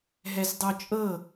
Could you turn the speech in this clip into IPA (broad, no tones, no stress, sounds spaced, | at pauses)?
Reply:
ɦ ɛ z dˤ o t͡ʃʼ ɤ